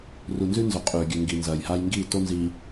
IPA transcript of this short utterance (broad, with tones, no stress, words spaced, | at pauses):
ru˨nzʉ˦nzɵ˨ qʼʉː˨ɡʲʉ˨ ŋɡi˨nzɐː˨j ha˦jŋɡiː˦˨to˦nziː˨